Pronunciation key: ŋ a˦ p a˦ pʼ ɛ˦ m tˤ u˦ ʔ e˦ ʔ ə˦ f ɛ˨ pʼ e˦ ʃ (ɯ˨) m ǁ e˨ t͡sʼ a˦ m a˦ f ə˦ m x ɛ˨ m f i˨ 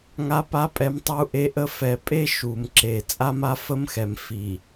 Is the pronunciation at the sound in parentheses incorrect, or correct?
incorrect: u˨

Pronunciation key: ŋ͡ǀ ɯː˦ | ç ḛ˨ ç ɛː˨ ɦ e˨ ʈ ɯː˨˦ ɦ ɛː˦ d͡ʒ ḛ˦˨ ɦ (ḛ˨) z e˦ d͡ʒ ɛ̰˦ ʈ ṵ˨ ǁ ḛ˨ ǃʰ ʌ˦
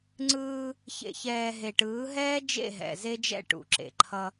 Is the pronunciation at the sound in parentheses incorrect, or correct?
incorrect: ɛ̰˨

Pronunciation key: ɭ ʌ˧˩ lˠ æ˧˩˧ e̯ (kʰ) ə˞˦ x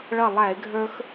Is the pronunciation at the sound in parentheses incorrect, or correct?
incorrect: ɡʱ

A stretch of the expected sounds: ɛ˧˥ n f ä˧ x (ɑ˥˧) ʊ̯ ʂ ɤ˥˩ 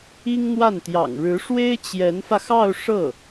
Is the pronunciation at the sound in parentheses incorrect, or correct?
correct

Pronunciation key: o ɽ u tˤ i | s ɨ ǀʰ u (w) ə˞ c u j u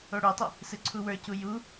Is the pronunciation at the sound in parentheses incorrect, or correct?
correct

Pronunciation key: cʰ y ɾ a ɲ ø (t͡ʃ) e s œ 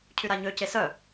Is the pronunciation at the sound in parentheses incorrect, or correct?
incorrect: c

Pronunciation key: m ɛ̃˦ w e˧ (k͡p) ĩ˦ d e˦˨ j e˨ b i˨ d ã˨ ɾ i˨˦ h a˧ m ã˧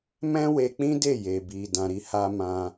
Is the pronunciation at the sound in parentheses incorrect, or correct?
correct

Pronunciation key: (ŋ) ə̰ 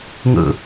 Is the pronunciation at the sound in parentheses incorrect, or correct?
correct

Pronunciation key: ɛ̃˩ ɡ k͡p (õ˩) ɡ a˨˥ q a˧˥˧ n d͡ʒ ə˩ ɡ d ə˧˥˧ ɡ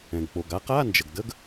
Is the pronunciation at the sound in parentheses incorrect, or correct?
incorrect: o˩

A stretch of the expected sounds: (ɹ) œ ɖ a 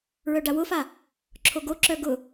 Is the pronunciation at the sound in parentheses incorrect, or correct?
correct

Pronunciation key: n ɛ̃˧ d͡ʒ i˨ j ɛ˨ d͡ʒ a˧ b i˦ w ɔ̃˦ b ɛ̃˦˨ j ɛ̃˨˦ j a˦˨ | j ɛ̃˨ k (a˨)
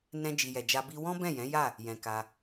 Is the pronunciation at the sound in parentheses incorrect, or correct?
incorrect: a˧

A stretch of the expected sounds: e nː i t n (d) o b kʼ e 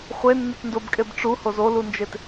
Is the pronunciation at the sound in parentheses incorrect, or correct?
correct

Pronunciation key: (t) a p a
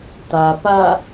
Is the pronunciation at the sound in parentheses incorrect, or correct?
correct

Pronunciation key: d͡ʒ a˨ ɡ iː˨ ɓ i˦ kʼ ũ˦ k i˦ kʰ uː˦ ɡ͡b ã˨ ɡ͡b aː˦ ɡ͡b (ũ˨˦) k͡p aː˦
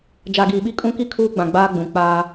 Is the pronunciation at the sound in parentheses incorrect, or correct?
correct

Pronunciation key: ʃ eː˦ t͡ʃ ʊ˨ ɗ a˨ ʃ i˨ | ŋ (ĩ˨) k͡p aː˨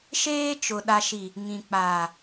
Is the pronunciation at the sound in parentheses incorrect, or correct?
correct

